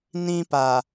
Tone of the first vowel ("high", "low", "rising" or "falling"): high